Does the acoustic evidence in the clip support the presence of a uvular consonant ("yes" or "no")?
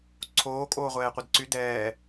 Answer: yes